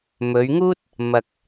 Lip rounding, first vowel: rounded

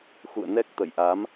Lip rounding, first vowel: rounded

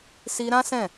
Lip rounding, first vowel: unrounded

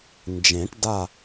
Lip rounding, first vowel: unrounded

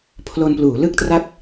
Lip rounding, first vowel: rounded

